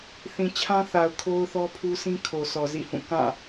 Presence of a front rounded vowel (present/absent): absent